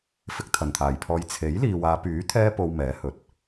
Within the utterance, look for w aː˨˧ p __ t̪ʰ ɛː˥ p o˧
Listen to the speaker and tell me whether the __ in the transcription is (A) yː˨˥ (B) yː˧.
A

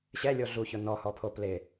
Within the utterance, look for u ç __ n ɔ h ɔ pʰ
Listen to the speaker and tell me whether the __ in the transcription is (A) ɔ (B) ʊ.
B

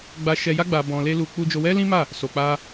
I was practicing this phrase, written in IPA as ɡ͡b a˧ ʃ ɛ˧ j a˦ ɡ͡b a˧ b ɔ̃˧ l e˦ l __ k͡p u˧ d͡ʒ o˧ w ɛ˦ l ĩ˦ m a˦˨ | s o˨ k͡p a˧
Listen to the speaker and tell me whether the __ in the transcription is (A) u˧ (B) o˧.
A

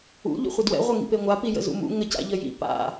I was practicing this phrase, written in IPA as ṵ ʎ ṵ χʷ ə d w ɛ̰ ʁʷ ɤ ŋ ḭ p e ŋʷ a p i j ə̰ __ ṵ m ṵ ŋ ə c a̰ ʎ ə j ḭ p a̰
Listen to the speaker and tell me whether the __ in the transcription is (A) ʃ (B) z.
B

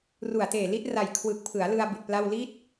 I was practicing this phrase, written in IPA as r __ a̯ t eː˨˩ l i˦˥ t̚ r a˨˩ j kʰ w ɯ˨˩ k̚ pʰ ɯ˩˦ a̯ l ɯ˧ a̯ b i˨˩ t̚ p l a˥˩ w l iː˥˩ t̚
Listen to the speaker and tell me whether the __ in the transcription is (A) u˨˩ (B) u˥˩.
A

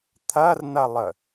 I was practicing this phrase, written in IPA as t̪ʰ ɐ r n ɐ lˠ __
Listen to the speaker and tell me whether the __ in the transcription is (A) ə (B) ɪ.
A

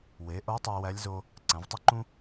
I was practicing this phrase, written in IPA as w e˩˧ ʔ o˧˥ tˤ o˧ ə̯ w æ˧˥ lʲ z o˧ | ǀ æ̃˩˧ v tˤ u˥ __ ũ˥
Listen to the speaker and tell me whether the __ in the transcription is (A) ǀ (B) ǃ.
B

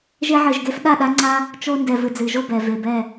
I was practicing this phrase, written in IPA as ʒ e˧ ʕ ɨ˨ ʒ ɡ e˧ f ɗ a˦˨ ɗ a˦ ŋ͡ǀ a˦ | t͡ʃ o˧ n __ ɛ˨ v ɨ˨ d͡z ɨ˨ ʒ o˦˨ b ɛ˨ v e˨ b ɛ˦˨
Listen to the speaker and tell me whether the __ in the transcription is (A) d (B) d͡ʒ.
A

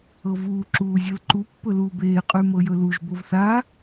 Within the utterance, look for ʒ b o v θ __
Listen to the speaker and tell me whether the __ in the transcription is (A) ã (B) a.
B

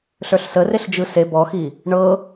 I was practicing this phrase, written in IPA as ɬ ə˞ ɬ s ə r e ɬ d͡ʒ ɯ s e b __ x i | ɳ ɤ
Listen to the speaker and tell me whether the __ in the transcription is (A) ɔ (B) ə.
A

